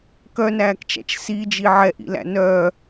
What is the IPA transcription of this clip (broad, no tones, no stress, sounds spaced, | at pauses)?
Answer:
k œ n æː k t͡ʃ æ̰ t͡ʃ s i d͡ʒ i ʕ ɛ ʔ ḭ l æ̰ n œː